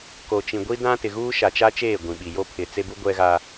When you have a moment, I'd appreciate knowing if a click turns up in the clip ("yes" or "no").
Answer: no